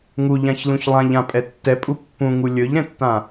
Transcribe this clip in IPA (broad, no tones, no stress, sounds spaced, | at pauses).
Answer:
ŋ u ʎ ã ç l ũ ç lˠ ã ʎ ã pʼ ɛ tː ɛ pʼ u pː ũ ŋ u lʲ ɵ ʎ ɾ ɛ̃ tː ã